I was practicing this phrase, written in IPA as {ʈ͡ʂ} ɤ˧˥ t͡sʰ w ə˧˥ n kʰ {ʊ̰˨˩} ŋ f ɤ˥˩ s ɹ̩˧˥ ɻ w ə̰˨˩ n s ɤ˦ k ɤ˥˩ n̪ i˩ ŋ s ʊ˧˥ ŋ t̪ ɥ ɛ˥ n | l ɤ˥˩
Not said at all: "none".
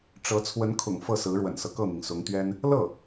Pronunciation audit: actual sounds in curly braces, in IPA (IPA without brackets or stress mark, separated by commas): ʈ͡ʂ, ʊ̰˨˩